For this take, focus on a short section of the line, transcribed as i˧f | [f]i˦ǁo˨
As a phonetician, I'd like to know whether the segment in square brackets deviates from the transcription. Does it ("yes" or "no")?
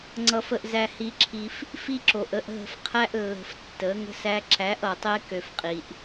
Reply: no